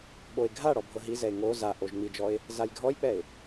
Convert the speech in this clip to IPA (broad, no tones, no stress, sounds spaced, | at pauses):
ɓ o ɪ̯ ɡʱ a ɽ ɔ bʱ ɤ ɦ i z ɛ ɪ̯ ŋ o z a ʔ o ʒ ŋ͡m i d͡ʒ ɔ ɪ̯ | z a j ɡʱ ɔ j k͡p ɛ ɪ̯